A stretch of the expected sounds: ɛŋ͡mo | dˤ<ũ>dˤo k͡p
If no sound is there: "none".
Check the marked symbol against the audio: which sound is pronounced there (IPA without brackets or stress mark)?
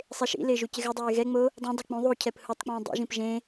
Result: õ